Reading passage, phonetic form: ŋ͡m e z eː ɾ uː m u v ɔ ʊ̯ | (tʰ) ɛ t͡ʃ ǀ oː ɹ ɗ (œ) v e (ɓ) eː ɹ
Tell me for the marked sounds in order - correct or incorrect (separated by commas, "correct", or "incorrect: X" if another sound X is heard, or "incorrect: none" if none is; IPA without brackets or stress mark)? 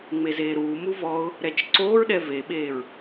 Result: incorrect: ɾ, incorrect: ɛ, correct